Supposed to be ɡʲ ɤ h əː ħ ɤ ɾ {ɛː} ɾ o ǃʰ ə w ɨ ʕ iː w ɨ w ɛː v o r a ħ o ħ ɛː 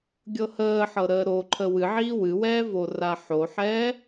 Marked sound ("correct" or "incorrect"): incorrect